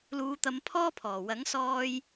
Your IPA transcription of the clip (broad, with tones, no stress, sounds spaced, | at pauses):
l uː˨˧ t̪ ɐ˨˧ m pʰ ɔː˥ pʰ ɔː˨˩ w ɐ˨˥ ŋ s ɔː˨ j